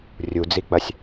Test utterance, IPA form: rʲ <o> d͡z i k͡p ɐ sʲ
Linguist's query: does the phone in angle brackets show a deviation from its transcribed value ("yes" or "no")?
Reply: yes